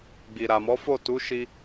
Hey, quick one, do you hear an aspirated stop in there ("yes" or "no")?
no